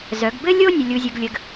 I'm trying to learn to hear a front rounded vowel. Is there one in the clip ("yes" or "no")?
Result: yes